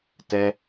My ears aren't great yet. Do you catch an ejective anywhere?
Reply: no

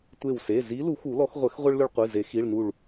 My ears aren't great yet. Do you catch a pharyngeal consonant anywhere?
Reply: no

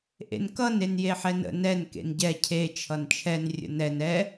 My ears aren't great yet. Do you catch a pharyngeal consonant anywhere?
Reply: yes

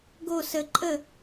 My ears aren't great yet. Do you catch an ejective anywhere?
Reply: yes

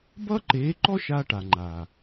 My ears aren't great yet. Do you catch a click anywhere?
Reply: yes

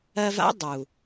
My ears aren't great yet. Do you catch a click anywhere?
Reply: no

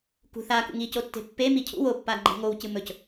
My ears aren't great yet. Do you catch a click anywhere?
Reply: yes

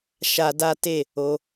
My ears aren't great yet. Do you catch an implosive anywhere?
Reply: no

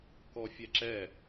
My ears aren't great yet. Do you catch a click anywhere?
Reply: yes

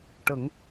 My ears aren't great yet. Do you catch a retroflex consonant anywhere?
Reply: yes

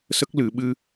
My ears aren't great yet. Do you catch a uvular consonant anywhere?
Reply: no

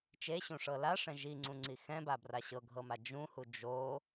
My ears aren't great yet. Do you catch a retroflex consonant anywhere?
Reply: yes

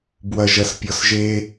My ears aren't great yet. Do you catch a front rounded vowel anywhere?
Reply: no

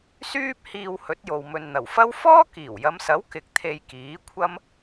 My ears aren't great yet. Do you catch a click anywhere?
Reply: no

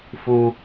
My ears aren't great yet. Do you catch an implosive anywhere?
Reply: no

